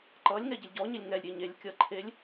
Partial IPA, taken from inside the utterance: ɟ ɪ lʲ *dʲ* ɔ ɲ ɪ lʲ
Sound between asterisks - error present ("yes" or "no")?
yes